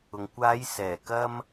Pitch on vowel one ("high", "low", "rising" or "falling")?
low